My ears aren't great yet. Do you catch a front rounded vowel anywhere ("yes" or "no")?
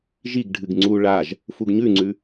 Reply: no